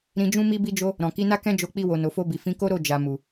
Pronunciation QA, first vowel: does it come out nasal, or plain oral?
nasal